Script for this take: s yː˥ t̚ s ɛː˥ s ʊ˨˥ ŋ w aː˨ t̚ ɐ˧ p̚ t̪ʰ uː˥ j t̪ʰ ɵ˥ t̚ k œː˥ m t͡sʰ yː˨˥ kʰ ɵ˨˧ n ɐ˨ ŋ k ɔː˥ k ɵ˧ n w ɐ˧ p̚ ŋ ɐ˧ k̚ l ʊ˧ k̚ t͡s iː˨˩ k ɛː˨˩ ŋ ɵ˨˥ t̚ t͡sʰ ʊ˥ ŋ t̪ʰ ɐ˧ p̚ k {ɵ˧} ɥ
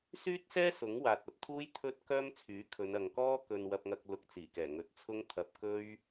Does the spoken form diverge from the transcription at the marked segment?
yes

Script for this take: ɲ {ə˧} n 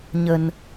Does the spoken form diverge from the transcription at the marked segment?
no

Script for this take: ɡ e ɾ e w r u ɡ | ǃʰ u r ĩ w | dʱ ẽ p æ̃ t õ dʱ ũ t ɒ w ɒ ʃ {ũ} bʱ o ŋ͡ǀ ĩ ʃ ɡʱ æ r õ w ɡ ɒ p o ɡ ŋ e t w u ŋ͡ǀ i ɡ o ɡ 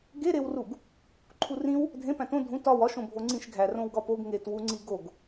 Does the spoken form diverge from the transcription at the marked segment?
yes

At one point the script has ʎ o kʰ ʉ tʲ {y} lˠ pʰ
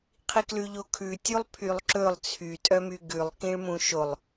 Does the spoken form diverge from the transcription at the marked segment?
yes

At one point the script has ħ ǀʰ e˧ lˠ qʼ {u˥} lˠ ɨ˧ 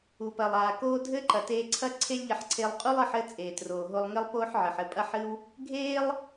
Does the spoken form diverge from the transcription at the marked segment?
no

